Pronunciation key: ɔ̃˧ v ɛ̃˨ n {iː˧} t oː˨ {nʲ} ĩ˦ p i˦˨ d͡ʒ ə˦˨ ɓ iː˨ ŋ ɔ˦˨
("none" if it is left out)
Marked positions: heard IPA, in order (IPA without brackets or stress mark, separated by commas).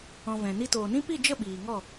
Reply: i˧, n